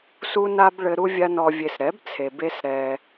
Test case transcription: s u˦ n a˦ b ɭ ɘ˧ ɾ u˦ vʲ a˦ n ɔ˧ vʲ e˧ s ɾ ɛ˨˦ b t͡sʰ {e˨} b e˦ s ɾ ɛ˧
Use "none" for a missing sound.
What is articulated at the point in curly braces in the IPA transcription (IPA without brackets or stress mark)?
e˨